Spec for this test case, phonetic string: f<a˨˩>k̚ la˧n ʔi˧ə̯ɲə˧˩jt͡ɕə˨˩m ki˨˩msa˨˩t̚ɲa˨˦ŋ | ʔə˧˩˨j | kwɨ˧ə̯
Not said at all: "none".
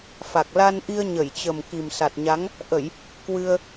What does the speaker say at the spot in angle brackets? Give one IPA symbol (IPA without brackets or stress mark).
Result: a˨˩